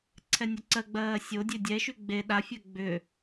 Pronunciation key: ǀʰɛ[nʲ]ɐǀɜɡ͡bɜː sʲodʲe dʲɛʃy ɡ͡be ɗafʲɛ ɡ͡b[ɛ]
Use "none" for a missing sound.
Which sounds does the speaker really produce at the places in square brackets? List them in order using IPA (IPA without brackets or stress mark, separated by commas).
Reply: nʲ, ʏ